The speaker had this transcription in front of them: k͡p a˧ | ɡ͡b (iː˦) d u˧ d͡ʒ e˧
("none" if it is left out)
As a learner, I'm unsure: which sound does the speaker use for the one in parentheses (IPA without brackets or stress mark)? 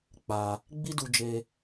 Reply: i˦